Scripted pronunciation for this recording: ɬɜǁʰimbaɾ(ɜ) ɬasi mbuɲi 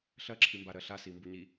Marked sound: correct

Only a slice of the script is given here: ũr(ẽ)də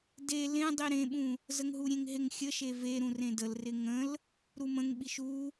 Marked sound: correct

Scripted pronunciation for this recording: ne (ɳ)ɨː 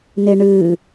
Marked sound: correct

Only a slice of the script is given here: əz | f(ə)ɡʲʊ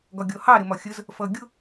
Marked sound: incorrect: ʌ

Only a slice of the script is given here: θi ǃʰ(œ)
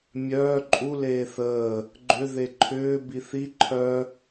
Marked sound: correct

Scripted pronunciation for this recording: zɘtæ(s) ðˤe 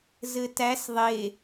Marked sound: correct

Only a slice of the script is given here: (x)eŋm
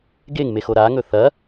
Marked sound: incorrect: ɡ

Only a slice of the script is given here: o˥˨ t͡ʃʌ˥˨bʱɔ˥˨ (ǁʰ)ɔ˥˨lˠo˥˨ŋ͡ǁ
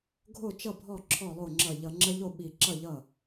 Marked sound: correct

